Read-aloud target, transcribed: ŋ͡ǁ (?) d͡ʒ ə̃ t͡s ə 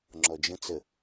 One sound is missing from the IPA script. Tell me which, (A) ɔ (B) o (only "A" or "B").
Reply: A